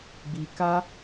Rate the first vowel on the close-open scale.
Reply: close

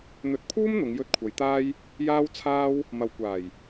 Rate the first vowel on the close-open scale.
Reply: mid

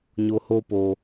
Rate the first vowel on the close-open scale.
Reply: mid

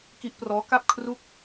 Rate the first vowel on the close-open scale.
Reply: close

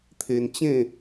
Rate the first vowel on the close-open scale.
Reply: mid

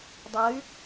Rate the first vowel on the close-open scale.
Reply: mid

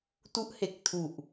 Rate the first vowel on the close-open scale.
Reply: close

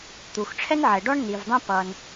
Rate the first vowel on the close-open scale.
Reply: close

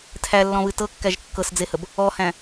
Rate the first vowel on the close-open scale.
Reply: open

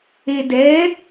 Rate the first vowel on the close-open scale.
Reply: mid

